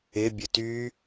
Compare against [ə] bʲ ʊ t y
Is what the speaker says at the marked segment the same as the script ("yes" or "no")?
no